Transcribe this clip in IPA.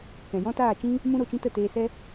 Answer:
k ɛ̃˨ j ɔ̃˦ t aː˦˨ t͡ʃ ĩ˦ | m ũ˦ ɾ o˦˨ t͡ʃ ĩ˦ t ə˦˨ t eː˧ s ɛ˦

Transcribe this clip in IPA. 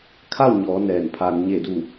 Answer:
kʰ a˥˨ w ɲ ɔː˩˧ n ɛː˧˩ n pʰ aː˧ n ɲ e˧˩ d u˧˩

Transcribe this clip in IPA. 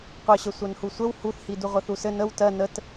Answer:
qʷ ɘ ɕ ə sʷ œ n h u sʷ ə w h u θ h i d u ʁʷ ə θ u s ɘ n ə w t ɜ n ə t

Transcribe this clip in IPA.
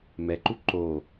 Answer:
m ɛ ǃ u ǃ o

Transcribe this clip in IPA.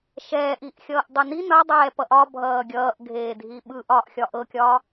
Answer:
ʃ ɛː ʔ i ʔ xʲ ʌː ʔ dˤ i n i n ʌ dˤ ɛː p ʌ ʔ ɒ bʱ ʌː ɡʲ ʌː ʔ ɡʱ eː dʱ i ɓ ɯ ʔ ɒː ʔ xʲ ɒ ʔ ɤ kʲ ɒː

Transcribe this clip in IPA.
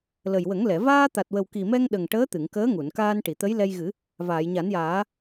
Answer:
l ə˨˩ j w ə˨˩˦ ŋ l ɛ˨˩˨ v aː˧ t̪ a˨˩ t̚ w ə˨˩ w k i˨˩ m ɛ˧ ŋ ɗ ə˨˩ ŋ ʈ əː˧˥ t̪ ɨ˨˩˨ ŋ k əː˧˥ ŋ u˨˩˨ n k aː˧ n ʈ i˨˩˨ t̪ ə˧˥ j l ɛ˧ j ɣ ɨ˨˩˦ | v aː˨˩˨ j ɲ a˨˩˦ n j aː˨˩˦

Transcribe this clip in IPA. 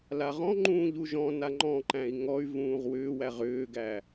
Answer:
l a ʁ ɔ̃ ŋ͡ǃ ũː ʎ u ʒ ɔ̃ n a ŋ͡ǃ ɔ̃ ǃ æ̃ i̯ ŋ ɔ y̯ v ũː ʁ w ʏː w æ ʁ ʏː ɡ æ

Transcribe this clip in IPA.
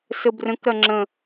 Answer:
s ə b r ə̃ k ɾ ɐ ŋ͡ǁ ə̃

